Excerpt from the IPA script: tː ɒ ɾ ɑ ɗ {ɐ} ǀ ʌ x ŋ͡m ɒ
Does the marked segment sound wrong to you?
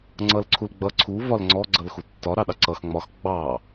yes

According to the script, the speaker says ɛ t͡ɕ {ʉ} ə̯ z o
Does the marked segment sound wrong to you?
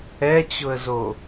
yes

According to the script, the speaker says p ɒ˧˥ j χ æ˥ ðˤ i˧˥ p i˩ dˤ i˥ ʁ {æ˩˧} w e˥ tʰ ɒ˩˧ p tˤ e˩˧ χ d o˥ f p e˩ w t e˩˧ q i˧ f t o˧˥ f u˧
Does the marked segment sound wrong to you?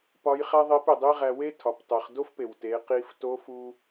yes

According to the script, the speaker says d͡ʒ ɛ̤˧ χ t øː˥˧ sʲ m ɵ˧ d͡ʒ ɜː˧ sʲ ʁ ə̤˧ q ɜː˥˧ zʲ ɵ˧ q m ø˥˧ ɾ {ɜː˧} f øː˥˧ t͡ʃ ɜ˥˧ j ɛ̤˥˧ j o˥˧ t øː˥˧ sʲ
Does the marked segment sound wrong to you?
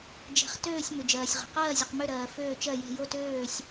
no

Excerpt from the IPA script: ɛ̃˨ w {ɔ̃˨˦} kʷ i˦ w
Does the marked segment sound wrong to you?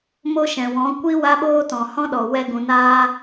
no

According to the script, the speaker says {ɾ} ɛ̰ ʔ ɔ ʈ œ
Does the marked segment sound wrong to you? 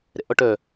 no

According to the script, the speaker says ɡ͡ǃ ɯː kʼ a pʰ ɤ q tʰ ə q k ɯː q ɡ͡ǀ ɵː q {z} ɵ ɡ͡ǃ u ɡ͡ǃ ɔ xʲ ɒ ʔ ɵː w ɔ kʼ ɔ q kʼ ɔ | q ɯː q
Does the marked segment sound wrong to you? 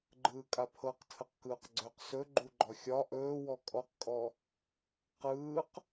yes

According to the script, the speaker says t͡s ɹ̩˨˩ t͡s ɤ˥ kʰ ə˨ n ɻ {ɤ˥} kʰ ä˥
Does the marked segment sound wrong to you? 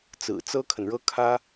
no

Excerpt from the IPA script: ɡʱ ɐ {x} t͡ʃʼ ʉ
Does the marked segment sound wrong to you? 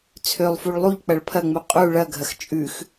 no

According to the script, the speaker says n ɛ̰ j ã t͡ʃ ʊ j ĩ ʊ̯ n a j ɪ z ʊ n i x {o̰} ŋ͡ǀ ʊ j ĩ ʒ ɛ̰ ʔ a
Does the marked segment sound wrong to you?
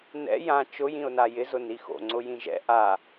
no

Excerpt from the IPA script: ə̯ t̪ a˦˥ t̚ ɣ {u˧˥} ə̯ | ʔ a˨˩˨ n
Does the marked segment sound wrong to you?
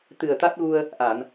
yes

